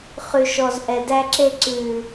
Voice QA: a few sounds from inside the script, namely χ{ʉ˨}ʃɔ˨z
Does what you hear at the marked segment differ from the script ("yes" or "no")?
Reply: no